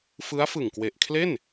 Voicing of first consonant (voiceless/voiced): voiceless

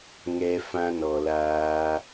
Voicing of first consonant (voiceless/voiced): voiced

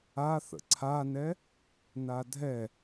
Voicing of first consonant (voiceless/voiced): voiceless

